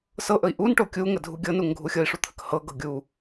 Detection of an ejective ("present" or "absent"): absent